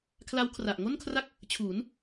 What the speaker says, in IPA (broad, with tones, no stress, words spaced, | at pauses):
kʰla˦˥wkʰra˨˩ʔŋo˥˩nkʰra˥˩k̚ | t͡ɕʰuː˩˦n